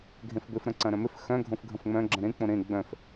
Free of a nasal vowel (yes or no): no